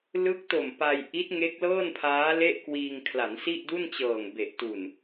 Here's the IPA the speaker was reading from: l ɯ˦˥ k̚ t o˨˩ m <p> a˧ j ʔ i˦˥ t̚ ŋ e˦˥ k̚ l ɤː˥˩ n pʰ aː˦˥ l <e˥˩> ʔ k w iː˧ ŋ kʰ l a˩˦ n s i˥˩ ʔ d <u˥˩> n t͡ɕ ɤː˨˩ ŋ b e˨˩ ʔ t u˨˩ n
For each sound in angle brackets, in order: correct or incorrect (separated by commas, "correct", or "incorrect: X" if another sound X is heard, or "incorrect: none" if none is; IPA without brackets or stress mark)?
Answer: correct, correct, correct